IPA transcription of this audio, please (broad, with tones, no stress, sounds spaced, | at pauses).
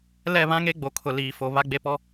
l ɛ˦˨ β ã˦ ŋ e˦ ɡ͡b o˨ kʰ ʊ˨ l iː˨ f o˨ β a˦ ɡ͡b e˦ p ɔ˦